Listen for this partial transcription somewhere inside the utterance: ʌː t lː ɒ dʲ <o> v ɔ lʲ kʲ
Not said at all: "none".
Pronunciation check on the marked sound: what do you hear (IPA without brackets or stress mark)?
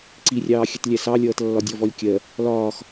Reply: ɔ